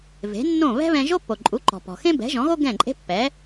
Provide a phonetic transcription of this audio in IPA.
ve̤˩˥nːõ˥˩ βɛ̤˥βɛ̃˧ʒo˥ pːo˩ǃʼu˩˥ǃɔ̤˩pɔ̤˩ xẽ˥bɛ̤˩˥ʒɔ̃˩˥ɣo˥ ɡɛ̃˥˩ǃʼe̤˥pːɛ˩˥

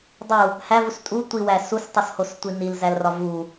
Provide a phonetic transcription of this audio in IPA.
dˤu | hævus tʼu tʷiwæ sustˤushostʷi nilzælrɒ vu

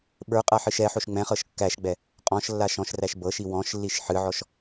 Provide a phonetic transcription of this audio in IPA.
ɓə˞qʼa ħɨʃɛħoʃ ŋ͡mɛ̃χɤʃ kːæʃɡ͡bɛ | qʼɔ̃ʃlːaʃ ɔ̃ʃræʃ bɤʃi wɔ̃ʃlːiʃ ħɨʕɔʃ

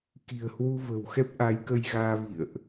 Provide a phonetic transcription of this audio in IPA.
ki̤˨˩ə̯hwu˧və̤˨˩wxɛ˦˥p̚ ʔa˨˦jkə˧jɣaː˧vḭ˧˨ə̯ʔ

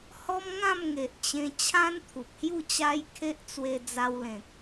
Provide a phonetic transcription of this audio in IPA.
hɔ˦mŋã˥˧m ŋe˨ʔt͡ɕẽ˧ t͡ɕʰã˦nt̪ʰu˨p̚hju˥˧ t͡ɕa˦jkʰe˦ʔ t͡swe˧d͡za˧wlẽ˨k̚

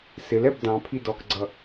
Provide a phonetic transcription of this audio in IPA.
sɪlɛb dɑ̃pʰi dɔkɡ͡ǀʌ

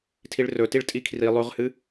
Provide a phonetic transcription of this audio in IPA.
tʰiɭrɵtiɭ tʼikʰri lˠʉʁhɨ

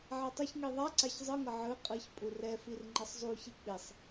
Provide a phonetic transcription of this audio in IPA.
ʕatˤʌçŋi ðˤaǀaç zˤɯŋʌ ʕɯ qʼɯç pʼurɛfir ŋ͡ǃʌsˤzˤuçi k͡pisˤ

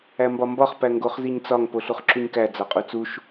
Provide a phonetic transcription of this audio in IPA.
æmbɒmbɒχ pæŋɡoχ ziɲt͡sɒŋ poɬuχǁuɲkæ d͡zɒqʼut͡suʃ

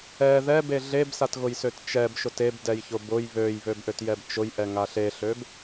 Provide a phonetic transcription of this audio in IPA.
ɛ ðɛbe ɮebsatɣʊjsøt t͡ʃɛbʃʊt ebdɛjçʊ bʊj βøjβøbʔøtjɛb t͡ʃʊjʔɛŋa ɬeɬøb

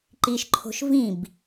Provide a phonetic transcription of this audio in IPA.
ǃiʃǃʰo̤ʃ vĩb

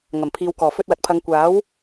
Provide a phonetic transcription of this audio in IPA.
ŋɐ˨˩mpʰiː˨wkɔː˨˩ fɵ˧t̚wɐ˨t̚pʰɐ˨˧ŋ kʷaː˨˥w

